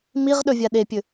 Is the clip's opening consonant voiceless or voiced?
voiced